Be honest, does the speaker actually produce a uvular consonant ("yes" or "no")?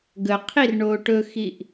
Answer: yes